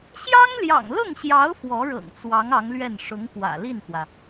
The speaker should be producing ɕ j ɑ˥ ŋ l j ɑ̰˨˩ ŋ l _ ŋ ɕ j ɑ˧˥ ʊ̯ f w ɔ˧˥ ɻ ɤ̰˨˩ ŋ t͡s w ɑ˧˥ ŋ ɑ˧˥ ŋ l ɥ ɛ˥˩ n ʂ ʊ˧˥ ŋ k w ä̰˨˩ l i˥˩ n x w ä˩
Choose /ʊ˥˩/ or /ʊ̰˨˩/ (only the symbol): ʊ˥˩